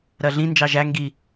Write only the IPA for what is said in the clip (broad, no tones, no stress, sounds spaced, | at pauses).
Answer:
ɾ ɜ ɮ ĩ n d͡ʒ ɑ ʒ æ ŋ ɡ i